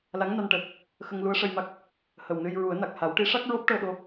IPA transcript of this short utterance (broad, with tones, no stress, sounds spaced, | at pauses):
l a˧˥ ŋ n a˧ n ʈ əː˨˩ k̚ | x ə˧ ŋ l u˧˥ ə̯ ʂ ə˧ j m a˦˥ k̚ | h ə˨˩ w n ɨ˧ j ɹ u˨˩˦ ə̯ n a˨˩ k̚ h a˨˩˦ w ʈ i˧˥ ʂ a˦˥ k̚ ɹ o˦˥ p̚ ʈ əː˧ ɗ o˧